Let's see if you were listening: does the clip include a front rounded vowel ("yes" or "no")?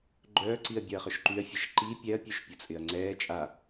yes